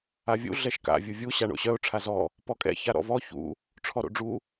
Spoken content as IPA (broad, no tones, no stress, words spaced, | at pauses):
avʲṵ ɮɛʃka̰ vʲuvʲu ɕaɳo̰ɕœʊ̯ ʈ͡ʂʰazɔ | pɔkʼɛ̰ çaɾɔ̰vɔ çṵ | ʈ͡ʂʰɔɾo̰ɖ͡ʐu